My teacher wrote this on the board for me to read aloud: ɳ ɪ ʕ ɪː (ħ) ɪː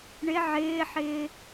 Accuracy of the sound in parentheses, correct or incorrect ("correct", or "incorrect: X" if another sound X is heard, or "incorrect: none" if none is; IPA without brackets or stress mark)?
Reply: correct